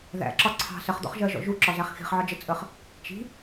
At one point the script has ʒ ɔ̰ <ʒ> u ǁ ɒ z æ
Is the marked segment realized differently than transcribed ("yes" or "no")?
no